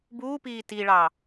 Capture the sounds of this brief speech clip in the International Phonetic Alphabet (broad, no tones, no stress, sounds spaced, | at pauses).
b uː p iː t i ɭ ɑ